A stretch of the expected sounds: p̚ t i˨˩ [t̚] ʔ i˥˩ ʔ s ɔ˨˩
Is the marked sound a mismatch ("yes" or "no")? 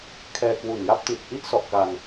no